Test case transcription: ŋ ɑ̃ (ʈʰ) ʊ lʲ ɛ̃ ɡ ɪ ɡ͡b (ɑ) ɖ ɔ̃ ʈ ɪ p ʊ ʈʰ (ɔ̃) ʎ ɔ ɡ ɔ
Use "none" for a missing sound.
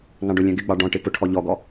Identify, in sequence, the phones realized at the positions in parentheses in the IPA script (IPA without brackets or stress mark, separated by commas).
ɖ, ɑ, ɔ